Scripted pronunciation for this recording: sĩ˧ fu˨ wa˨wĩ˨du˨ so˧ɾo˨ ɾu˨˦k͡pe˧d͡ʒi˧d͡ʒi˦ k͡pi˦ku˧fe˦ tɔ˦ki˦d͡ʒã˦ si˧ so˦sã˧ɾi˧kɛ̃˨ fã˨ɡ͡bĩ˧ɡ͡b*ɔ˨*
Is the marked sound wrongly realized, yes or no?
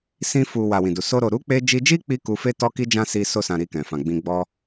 yes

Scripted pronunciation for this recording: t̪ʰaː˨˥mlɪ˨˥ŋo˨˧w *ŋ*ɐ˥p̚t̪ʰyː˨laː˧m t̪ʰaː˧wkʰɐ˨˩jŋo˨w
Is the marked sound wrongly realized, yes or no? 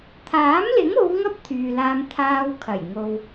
no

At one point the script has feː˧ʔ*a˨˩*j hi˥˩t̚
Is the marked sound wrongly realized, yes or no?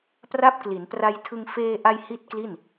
yes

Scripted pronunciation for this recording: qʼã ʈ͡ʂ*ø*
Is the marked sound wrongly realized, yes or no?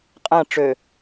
no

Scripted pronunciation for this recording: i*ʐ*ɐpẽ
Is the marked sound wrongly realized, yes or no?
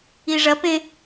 no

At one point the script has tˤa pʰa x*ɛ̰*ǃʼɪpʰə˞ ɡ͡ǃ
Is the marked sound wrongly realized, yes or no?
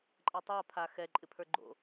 yes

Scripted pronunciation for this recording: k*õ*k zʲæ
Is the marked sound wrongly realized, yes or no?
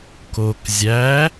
yes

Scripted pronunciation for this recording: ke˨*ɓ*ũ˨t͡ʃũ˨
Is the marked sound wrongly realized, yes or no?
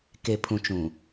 yes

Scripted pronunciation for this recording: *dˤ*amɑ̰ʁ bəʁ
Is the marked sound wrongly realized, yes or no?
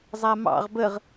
yes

